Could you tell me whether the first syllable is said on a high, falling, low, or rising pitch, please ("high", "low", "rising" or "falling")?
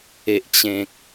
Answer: low